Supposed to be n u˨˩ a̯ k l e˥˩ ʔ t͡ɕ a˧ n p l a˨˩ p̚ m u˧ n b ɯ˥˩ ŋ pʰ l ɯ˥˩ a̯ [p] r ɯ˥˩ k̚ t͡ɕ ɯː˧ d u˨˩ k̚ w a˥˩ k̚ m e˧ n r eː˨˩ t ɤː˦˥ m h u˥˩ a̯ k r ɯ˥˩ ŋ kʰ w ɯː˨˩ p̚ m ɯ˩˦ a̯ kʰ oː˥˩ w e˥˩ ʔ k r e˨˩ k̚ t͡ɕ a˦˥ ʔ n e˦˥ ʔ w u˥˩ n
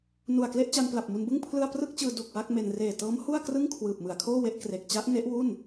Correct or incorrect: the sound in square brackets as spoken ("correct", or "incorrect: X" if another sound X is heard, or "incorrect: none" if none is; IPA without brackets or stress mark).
correct